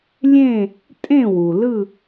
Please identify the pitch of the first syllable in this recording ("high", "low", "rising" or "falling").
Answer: falling